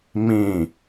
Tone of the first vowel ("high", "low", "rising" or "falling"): falling